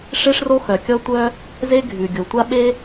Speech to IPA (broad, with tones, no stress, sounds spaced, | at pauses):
ʂ e˥ ʂ r o˥ x œ˩ kʲ ɔ˥ tʷ œ˥ | z e˥ ɡʱ ʉ˩ ɡʲ o˩ tʷ a˥ ɓ e˥